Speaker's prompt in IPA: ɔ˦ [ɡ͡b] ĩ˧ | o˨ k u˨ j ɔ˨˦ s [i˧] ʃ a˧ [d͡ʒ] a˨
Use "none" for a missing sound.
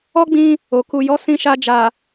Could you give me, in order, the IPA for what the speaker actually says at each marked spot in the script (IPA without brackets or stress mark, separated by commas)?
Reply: ɡ͡b, ĩ˧, d͡ʒ